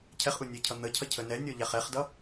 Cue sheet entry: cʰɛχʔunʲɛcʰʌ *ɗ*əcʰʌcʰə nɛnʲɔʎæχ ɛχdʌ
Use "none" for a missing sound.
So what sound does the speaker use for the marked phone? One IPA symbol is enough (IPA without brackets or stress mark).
n̪